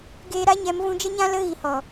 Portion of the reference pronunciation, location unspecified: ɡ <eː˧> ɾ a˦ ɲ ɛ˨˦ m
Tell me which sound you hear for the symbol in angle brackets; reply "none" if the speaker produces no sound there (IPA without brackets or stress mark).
eː˧